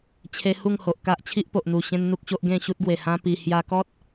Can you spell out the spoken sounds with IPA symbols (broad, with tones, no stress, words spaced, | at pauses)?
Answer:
t͡ɕʰe˧ hu˥˧ŋho˨ʔ ka˦ʔt͡ɕʰi˦ʔpo˨ʔn̪u˨˩ ɕẽ˦nn̪u˦k̚ɕo˦ʔ ɡẽ˥˧ɕu˦t̚ɡwe˨˩ hã˦ pi˧ hja˧kɔ˦t̚